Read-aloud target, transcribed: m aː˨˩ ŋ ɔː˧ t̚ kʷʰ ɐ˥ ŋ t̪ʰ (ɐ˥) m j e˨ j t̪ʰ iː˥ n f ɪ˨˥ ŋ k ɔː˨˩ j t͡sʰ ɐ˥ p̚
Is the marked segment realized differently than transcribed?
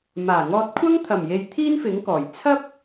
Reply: yes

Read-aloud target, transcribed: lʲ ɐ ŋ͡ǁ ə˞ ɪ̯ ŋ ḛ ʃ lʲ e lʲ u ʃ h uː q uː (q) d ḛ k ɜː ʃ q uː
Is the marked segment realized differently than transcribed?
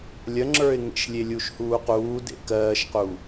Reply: yes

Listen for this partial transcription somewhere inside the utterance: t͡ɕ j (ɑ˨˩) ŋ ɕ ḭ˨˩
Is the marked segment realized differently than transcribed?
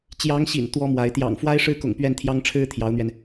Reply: yes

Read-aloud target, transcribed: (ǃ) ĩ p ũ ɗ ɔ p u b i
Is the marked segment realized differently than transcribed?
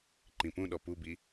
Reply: no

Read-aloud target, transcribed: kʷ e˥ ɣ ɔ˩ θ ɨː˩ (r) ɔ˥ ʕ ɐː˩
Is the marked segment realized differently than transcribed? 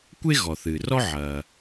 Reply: no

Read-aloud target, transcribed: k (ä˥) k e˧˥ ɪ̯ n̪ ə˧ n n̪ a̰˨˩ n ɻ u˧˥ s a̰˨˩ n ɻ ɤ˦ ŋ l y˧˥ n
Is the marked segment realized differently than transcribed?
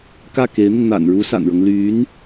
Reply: yes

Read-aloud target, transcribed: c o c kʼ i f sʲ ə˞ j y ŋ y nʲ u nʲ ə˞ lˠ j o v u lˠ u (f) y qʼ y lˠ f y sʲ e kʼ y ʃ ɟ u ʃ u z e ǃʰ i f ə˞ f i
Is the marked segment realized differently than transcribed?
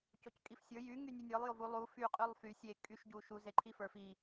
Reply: no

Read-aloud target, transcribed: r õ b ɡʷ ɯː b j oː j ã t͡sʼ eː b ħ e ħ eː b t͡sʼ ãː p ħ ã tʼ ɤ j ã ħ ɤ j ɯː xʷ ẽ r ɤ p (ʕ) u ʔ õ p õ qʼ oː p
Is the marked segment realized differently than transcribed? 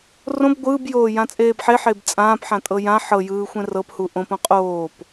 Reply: yes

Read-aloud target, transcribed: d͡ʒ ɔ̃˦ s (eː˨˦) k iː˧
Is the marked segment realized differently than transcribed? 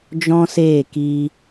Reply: yes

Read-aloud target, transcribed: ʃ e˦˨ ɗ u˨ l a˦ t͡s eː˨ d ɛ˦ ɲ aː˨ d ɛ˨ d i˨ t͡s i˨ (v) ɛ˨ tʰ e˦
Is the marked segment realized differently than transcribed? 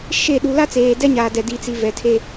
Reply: no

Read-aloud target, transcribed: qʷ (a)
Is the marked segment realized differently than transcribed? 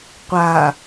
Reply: no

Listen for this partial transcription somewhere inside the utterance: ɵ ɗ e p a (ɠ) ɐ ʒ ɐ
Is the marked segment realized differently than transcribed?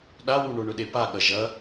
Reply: no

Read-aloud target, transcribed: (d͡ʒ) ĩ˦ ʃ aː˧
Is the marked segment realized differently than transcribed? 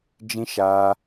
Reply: no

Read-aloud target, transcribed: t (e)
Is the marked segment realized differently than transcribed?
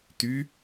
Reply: yes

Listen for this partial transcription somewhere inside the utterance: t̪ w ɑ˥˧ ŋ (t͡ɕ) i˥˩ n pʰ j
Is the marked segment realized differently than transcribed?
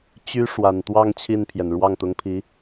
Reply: yes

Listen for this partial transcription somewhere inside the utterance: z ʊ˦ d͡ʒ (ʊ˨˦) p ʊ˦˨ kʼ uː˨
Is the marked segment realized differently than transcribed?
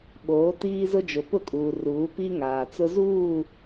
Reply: yes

